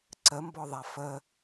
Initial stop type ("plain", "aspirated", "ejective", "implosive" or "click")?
click